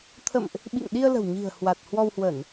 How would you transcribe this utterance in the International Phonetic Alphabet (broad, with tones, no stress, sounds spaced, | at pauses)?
t̪ʰ ə̰˧˨ m ʔ | ɓ ḭ˧˨ ŋ ɗ i˧ ə̯ l ə̤˨˩ w ɲ i̤˨˩ ə̯ h w a˨˩ t̚ h w ɔ˧ w h w ə˧˩˨ n